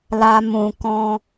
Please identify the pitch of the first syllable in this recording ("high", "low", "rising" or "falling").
high